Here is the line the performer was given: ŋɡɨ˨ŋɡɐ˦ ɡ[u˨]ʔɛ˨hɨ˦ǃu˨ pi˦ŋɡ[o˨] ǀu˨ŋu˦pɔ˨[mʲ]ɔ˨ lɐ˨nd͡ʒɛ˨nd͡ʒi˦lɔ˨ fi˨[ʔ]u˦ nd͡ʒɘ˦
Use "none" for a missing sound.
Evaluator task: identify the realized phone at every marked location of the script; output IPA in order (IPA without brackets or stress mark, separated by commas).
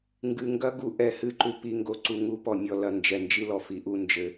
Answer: u˨, o˦, mʲ, ʔ